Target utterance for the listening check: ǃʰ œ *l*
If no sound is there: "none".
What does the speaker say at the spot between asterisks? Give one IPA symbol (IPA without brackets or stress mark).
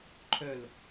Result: l